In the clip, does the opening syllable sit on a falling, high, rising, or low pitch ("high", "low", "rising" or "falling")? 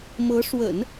rising